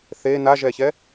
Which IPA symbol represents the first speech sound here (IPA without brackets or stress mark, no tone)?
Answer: θ